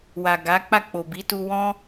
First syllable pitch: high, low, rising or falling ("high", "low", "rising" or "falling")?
low